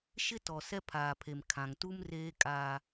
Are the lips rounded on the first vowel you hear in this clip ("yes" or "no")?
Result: no